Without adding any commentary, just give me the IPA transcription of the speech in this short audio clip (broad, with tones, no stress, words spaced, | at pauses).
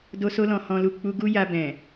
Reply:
do˧so˧lɔ̃˨ hɔ̃˧lu˧ k͡pu˧ɡu˦ ja˧bɛ̃˨